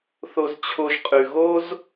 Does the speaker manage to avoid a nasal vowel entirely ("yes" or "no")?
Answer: yes